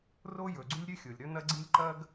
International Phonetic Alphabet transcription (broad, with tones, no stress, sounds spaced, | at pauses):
r o˥ j ɵ˩ ɡ͡ǀ ʉ˥ lʲ ɾʲ ɵ˥ xʲ o˩ lʲ ɾ ɵ˥ n ɐ˥ ɡ͡ǀ i˥ lʲ ǃ ɐ˥ ɡ